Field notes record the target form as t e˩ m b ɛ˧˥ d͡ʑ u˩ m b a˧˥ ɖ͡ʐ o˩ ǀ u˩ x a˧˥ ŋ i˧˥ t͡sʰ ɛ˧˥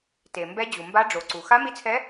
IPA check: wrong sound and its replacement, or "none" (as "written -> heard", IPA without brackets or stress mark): ŋ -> m